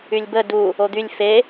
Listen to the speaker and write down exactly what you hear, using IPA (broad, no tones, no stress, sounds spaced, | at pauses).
y lʲ b ə d u | o d̪ y lʲ f e